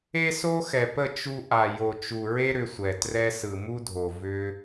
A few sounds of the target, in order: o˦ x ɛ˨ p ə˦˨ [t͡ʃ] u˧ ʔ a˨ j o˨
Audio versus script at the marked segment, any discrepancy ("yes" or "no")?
no